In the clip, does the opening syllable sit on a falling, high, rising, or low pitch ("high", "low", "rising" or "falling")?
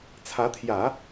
rising